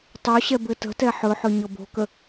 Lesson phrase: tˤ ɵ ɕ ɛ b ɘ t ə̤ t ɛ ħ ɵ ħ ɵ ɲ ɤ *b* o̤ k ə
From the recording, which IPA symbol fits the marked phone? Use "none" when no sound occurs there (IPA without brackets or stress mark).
b